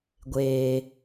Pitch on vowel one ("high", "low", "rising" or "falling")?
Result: low